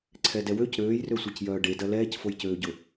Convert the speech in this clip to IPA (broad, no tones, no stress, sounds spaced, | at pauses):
ǀʰ ɛ d ɛ w ø c ɾ øː j r ø sʷ ɛ c j œː ɖ e d ɐ l ɛː c f o j c øː ɟ ʊ